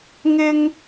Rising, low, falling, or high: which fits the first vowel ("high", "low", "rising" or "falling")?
high